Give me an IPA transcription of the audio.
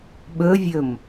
ɓ ɵ vʲ ɵ m

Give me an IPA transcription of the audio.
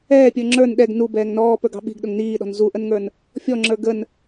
ɛː pʲ ə˞ ŋ͡ǁ ə˞ n ɗ ɛ ɡ n u b ɛː ŋ n ɔː p ə˞ ɡ ɑ̤ ɓ i̤ ɡ ɗ ʊ ŋ n iː ɗ ɔ̤ n z u ʔ ə n ŋ ə˞ n | fʲ ɔ ŋ͡ǁ ə˞ ɡ ə n

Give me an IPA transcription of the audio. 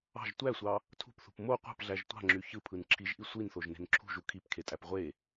ɑ̤ ʒ tʷ æ sʷ ɑ | tʰ ṳ p θ ṳ p m o qʷ ɑ̤ p ɮ æ ʒ tʷ ɑ̤ ŋ͡ǁ y ç ɯ pʰ ɯ n ǁʰ i ʒ ʔ i sʷ i n θ o ʒ n e̤ n ǁʰ ṳ ʒ u kʰ i p kʰ e tʼ æ p ʁʷ e

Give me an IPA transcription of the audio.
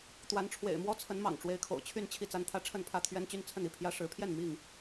t̪ w a˨˦ n ʈ͡ʂʰ w ḛ˨˩ ɪ̯ m w ɔ˦ t͡sʰ ə˨˦ n m ɑ̰˨˩ ŋ ʈ͡ʂ w e˨˦ ɪ̯ kʰ o̰˨˩ ʊ̯ t͡ɕʰ y˥˨ n t͡ɕʰ i˥˨ t͡s a˦ n t̪ʰ ä˦ ʈ͡ʂʰ ə˥˨ n pʰ ä˥˨ t̪ʰ ɥ ɛ˦ n t͡ɕ y˦ n t͡sʰ ə˥˨ n i˥˨ pʰ j ä˦ ʂ ɻ̩˨˦ pʰ j ɛ˥˨ n m i˥˨ ŋ

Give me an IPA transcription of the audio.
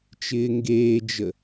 t͡ʃ ɪː ŋ ɡ eː d͡ʒ ə

